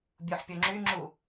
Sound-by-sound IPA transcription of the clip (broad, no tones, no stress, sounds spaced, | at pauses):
bʲ u ħ pʲ o ŋ͡ǁ y ŋ͡ǁ u